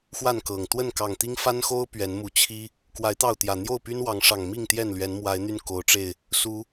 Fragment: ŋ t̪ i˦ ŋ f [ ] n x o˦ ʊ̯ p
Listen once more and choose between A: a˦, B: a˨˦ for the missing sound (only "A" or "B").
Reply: A